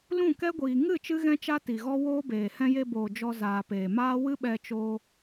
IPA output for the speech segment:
l ũ˦˨ k ɛ˦ ɡʷ iː˨ ŋ ɨ˦˨ t͡ʃ ɨ˦ ɣ ɛ̃˦ t͡ʃ a˦ t i˨ ɣ ɔ˦ w oː˦ b eː˨ h ɛ̃˧ j e˧ b oː˨ d͡ʒ ɔ˧ z aː˨ p eː˨ m aː˦ w ɨ˦ ɓ ɛ˧ t͡ʃ oː˧

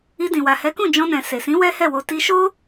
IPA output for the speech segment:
i˧ d ĩ˨ w a˨ h ɛ˨˦ k ũ˦˨ d͡ʒ ɔ̃˧ n ɛ̃˨ s e˨ s ĩ˨˦ w ɛ˦ h ɛ˦˨ w o˧ t i˧ ʃ o˦

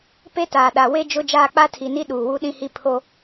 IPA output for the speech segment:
p e˦ t aː˨ ɗ a˨ w e˦ d͡ʒ ʊ˦ d͡ʒ aː˦˨ k͡p a˦ tʰ i˨ n i˦ ɗ uː˨ w u˦ ɗ ĩ˦ h i˦ pʰ o˦

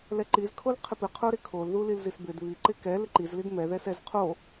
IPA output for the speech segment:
l ɛ ǃ i z kʰ o l qʰ ɪ p ɪ qʰ o ɾ ɪ kʰ o l ð u l i l z i s b ɪ d β i ǃ ɪ k ɛ l ɪ ǃ i z l i d m ɛ ð ɛ s ɛ z qʰ o

